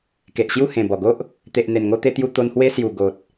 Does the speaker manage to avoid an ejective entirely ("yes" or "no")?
yes